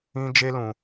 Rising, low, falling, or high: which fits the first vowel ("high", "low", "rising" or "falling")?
high